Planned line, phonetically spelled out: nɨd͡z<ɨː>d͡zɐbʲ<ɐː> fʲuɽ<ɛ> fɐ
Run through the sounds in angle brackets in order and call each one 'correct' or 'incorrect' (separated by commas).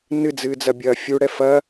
correct, correct, correct